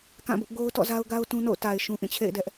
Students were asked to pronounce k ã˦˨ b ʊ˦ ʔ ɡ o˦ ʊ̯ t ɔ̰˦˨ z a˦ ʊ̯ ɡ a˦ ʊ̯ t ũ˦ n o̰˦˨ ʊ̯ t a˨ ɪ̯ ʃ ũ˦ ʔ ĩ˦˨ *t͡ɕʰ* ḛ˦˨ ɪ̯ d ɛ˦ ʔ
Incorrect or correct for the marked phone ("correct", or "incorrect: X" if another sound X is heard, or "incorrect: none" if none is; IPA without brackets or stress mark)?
correct